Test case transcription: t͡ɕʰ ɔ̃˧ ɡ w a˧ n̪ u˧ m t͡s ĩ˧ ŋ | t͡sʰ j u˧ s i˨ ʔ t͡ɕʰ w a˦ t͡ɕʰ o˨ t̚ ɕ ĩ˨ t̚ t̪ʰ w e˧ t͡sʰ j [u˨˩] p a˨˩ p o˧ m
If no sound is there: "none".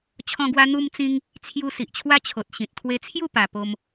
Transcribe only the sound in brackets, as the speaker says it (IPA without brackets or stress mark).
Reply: u˥˧